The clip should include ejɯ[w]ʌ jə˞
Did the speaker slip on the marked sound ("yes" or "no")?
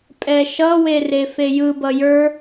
yes